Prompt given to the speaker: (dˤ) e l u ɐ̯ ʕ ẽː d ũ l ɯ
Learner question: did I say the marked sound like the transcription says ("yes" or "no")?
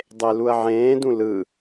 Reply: yes